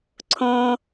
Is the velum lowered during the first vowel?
yes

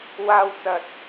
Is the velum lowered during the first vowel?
no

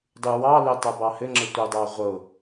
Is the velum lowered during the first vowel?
no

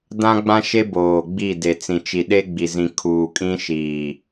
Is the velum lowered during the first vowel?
yes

